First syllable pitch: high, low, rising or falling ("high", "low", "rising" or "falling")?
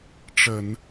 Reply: low